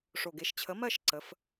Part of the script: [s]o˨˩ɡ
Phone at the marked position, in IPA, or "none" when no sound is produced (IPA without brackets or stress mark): ʂ